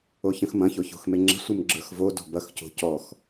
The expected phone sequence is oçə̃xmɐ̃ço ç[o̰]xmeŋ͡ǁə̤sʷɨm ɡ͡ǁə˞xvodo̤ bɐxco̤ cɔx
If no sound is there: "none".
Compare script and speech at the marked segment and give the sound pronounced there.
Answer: o̤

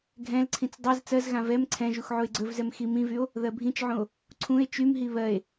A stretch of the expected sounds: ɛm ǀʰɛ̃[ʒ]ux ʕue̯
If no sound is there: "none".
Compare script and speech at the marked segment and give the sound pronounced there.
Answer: ʒ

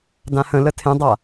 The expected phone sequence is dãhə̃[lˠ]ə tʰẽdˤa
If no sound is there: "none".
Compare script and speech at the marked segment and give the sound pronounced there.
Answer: l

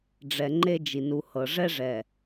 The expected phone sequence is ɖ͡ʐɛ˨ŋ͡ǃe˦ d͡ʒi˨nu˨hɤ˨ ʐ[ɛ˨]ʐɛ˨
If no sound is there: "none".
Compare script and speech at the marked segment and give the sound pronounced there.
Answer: ɛ˦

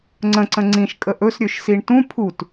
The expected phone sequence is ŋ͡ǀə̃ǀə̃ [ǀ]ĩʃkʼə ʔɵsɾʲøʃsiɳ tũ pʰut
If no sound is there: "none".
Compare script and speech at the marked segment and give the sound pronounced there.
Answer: ŋ͡ǀ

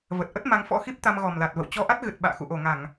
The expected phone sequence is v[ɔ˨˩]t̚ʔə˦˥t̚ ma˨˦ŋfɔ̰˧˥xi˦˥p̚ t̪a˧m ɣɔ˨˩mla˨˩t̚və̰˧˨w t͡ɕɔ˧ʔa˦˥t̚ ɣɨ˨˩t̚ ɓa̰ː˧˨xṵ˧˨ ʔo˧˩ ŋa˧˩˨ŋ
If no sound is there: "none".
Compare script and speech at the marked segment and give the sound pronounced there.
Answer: ə˨˩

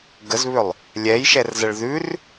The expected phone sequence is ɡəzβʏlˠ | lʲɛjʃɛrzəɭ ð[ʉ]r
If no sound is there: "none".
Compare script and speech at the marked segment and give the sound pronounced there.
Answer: ʉ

